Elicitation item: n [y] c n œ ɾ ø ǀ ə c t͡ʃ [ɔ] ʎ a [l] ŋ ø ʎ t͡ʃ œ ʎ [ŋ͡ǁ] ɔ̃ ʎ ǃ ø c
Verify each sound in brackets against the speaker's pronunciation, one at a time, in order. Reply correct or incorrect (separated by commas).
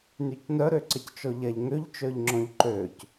correct, correct, incorrect, correct